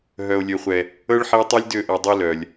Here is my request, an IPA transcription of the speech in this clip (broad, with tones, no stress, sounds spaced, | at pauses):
ɦ œ˨ o̯ lʲ ø˨ χʷ ɛ˨ | ɤ˦ ɭ ħ i˦ o̯ tˤ i˦ lʲ d ø˦˨ ʔ ɤ˨ dˤ i˦ l œ˨ lʲ